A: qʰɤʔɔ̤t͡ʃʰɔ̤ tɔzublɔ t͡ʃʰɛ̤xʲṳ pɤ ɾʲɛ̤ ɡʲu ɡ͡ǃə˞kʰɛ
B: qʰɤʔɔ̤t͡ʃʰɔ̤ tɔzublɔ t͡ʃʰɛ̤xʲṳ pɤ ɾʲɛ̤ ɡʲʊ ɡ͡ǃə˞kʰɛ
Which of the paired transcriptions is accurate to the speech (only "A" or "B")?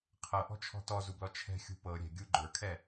A